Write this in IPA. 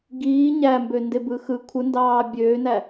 ɡ iː ɲ æ m b ø n d e b ɯ x ɯ kʷʰ ɯ n d ɑː bʲ øː n æ

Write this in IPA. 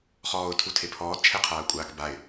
χ ɔː ʊ̯ tʰ u tʰ e pʰ ɔː d t͡ʃʰ ɛ qʰ aː ʊ̯ kʷʼ aː k b a ɪ̯

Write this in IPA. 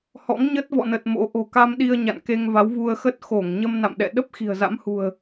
h ɔ̰˧˥ ŋ ɲ ə˦˥ t̚ v ɔ̰˧˨ n ə˨˩ t̚ m o̰˧˥ ʔ o̤˨˩ k a˧ m ɗ i˧ ə̯ ɲ a̰˧˨ n k e˧ ŋ v a˨˦ w v u˧ ə̯ x ə˦˥ t̚ x o˧˩ ŋ ɲ ə˧ m n a̰˧˨ m ɗ ɛ̰˧˨ ɗ ə˦˥ p̚ x i̤˨˩ ə̯ z a̰˧˥ m h ṳ˨˩ ə̯

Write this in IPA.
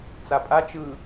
t͡s a pʼ a t͡ʃ ɯ

